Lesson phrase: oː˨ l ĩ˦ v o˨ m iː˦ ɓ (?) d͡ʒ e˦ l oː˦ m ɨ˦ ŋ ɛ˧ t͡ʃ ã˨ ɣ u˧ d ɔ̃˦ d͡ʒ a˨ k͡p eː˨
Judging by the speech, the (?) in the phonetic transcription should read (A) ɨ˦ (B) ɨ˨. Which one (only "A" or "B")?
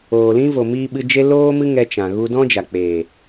A